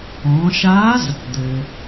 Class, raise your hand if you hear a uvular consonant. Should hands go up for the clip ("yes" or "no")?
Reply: no